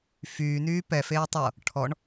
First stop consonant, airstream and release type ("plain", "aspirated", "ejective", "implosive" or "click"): plain